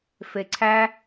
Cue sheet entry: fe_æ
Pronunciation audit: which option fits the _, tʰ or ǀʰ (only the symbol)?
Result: ǀʰ